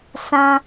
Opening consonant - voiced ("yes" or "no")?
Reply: no